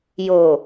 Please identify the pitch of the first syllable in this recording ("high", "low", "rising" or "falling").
low